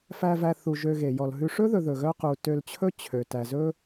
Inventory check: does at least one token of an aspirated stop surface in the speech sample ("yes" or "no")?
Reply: yes